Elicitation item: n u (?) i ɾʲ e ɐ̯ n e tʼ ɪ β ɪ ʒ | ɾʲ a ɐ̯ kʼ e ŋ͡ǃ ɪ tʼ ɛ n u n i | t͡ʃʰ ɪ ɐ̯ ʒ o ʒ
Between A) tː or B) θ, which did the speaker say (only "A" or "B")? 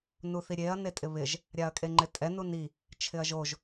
B